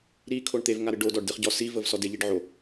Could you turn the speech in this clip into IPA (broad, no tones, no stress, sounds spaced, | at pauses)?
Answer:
ɾ i kʰ o ɳ t̪ e v ŋ a ɾ ɨ ɖ o d ɔ ɖ d ɨ χ ɟ ɔ s i v ə v s ɔ d e ʎ i ɖ ʕ o